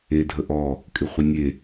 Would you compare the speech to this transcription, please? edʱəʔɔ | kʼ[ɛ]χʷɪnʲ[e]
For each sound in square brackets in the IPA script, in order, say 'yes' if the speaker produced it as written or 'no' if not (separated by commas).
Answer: no, yes